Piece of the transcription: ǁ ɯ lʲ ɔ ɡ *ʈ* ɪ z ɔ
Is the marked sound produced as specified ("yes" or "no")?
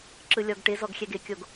yes